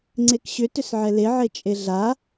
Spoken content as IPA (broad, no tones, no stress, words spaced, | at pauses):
ŋ͡ǀekɕʏ tʏsʕɛle ʕet͡ʃʼeɮa